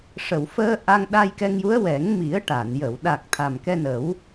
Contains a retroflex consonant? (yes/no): yes